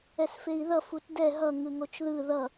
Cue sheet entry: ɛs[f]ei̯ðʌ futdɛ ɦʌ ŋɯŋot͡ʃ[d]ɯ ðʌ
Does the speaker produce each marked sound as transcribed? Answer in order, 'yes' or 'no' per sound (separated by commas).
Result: yes, no